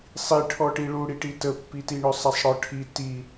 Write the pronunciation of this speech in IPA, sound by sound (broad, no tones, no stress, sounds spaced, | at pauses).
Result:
sˤ i ʈʰ ɔ ʈ i ɭ u ɽ i ʈ i t ə pː i t i ɳ ɵ sˤ ɛ sˤ ɽ ɔ ʈʰ i t i